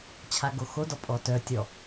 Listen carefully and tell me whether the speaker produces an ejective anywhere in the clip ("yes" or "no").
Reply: yes